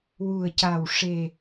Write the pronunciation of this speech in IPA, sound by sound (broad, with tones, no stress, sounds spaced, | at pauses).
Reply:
w u˨˩ ə̯ c a˨˩ w ʂ e˨˩